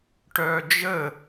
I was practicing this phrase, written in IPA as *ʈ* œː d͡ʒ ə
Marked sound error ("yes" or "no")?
no